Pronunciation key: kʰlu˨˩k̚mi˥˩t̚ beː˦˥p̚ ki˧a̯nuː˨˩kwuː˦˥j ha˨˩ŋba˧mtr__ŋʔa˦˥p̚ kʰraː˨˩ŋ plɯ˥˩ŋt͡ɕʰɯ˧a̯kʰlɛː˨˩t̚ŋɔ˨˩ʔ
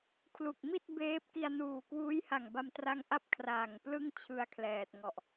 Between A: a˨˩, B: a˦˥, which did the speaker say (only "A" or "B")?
B